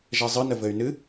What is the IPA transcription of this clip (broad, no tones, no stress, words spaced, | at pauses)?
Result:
ʒɛzˤɯnə vɘy̯nɨ